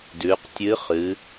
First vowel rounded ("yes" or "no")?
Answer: yes